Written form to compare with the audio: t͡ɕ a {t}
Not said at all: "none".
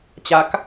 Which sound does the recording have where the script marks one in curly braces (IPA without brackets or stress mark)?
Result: k